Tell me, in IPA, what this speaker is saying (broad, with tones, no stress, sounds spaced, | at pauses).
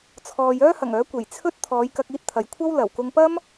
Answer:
t͡sʰ ɔː˨ j œː˥ h ɐ˨˩ ŋ œː˨˥ kʷ e˨˩ j t͡sʰ ɵ˥ t̚ t̪ʰ ɔː˨˧ j k ɐ˧ k̚ iː˧ t̚ t̪ʰ ɐ˨ j kʷʰ ɐ˥ w l ɐ˨˩ w k ʊ˧ ŋ p ɐ˥ m